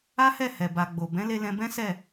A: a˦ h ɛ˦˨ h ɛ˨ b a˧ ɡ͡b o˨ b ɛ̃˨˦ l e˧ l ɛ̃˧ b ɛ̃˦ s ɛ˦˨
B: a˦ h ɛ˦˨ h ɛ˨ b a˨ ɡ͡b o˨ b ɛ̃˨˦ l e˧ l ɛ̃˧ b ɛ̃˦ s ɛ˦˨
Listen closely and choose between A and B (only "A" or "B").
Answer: B